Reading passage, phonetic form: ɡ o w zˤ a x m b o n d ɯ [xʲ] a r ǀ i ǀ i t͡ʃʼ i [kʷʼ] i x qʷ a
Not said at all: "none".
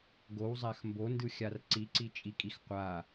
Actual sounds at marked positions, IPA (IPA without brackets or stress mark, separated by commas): xʲ, kʼ